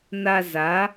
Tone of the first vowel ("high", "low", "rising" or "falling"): high